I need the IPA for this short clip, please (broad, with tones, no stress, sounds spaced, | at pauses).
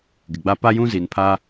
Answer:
ɡ ɪ˨ ɡ͡b a˦ p a˦ j ũ˦ z i˨ n pʰ a˦